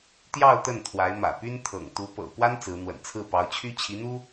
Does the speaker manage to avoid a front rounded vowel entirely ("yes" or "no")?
no